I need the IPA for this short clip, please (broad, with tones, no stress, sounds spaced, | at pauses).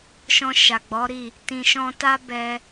ʃ ɔ̃˧ ʃ a˨ ɡ͡b ɔ˨˦ ɾ i˦˨ | t ĩ˨ ʃ ɔ̃˧ t a˦ b ɛ˧